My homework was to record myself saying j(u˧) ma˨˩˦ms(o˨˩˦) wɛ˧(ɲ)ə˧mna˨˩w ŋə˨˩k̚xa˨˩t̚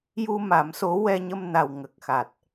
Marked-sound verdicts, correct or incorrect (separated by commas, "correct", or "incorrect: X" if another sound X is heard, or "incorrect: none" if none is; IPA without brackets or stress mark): correct, incorrect: o˧˥, correct